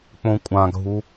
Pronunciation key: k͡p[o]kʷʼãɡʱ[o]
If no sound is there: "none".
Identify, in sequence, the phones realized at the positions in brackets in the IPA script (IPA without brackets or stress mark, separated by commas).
õ, u